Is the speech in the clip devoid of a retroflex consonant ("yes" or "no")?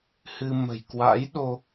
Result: yes